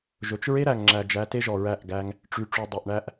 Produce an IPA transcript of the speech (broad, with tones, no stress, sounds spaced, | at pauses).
ʒ ɵ˨ t͡ʃ ɹ e˦ ɾ æ˨ ŋ ŋ͡ǁ æ˨ d͡ʒ æ˨˦ t e˦ ʒ ɔ˨ ɹ æ˦˨ ʔ ɡ æ˦ ŋ | ʈ͡ʂ y˨ ʈ͡ʂ u˨ dˤ ø˨ ʔ ɳ æ˦ ʔ